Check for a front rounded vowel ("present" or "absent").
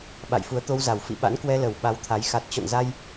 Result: absent